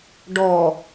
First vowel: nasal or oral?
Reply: oral